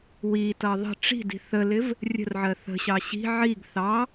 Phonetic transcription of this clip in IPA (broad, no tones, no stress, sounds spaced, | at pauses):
w i t ʌ ðˤ ə̤ ʈ͡ʂ i̤ d i̤ θ ə l ɪ v | rʲ ə̤ r ʕ ɜ θ ə̤ ɕ ɑ ɕ i̤ ʕ i ɡ θ ɑ